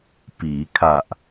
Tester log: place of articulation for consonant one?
labial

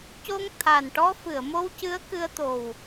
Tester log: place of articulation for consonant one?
palatal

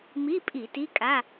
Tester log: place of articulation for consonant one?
labial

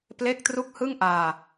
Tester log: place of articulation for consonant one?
labial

